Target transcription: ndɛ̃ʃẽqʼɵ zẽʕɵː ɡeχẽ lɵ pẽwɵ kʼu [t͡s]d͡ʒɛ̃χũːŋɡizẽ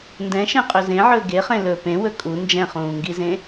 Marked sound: incorrect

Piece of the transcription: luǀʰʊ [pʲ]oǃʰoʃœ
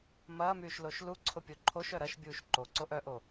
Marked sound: correct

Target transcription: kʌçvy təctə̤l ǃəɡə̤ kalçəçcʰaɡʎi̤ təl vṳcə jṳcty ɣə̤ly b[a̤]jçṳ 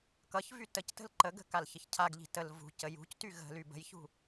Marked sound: incorrect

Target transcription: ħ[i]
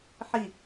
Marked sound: correct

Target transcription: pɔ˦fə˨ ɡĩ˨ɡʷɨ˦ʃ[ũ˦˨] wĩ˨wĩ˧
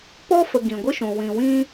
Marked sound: incorrect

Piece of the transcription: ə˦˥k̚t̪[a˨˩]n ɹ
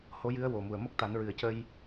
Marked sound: incorrect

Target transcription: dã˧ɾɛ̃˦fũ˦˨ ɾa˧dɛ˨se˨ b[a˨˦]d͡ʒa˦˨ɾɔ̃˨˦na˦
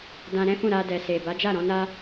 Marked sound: correct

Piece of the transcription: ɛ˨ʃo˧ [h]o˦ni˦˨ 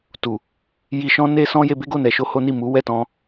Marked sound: correct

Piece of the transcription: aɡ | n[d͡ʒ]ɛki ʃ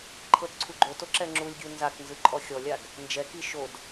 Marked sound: correct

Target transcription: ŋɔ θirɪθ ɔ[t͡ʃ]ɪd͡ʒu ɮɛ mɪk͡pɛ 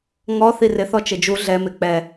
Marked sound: correct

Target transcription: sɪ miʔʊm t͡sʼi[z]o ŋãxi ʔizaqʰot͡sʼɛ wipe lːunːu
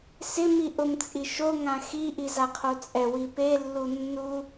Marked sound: incorrect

